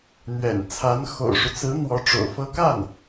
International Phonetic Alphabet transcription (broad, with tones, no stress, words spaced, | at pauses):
n̪ɥɛ̰˨˩nt͡sʰa˧˥n xo̰˨˩ʊ̯ʂu˦ t͡sɹ̩˧˥ n̪wɔ˧˥ʈ͡ʂo̰˨˩ʊ̯fɤ˥ ka˥˩n